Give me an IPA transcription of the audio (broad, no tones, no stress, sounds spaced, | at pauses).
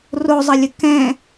r o zˤ ɐ lʲ ə k ɛ̃